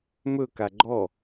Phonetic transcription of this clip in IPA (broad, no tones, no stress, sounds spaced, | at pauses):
m ɵ k a ɡ͡ǃ ɔ